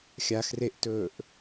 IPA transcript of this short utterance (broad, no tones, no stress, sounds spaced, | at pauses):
xʲ a x r e ʔ t ɵː ʔ